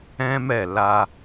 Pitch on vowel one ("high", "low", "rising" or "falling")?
high